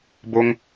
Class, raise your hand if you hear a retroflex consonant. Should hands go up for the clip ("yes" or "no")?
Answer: no